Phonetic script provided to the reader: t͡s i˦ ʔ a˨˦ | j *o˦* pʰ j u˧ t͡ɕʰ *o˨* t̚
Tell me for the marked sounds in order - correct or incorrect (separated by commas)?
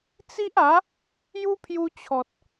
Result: incorrect, incorrect